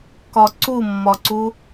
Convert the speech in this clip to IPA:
k ɒ ǀ u mː ɒ ǀ u

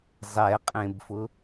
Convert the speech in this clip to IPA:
zˤ ɛ qʼ ẽ b f ʊ

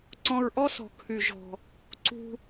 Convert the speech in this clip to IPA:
ǀ ɔ̃˧ ɹ ʔ ɔ˥ s ɔ̤˩ kʰ y˩ ʒ ɔ̤˩ | ǀ ṳ˧

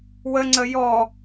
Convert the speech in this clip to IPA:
w ə ŋ͡ǀ ə j ɔ

